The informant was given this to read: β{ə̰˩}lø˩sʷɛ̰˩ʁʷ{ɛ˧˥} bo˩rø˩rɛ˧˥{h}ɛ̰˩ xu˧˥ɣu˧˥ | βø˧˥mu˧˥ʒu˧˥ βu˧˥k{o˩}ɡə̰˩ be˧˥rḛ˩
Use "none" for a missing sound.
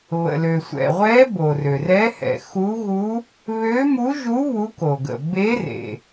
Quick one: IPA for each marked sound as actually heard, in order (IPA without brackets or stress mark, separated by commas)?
ə̰˩, ɛ˧˥, h, o˩